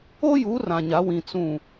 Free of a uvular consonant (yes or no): yes